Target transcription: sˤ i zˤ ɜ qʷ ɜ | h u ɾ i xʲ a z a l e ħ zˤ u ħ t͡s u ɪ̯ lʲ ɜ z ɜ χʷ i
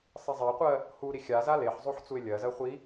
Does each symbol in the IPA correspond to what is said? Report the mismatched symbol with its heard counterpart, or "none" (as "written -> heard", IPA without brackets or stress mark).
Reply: none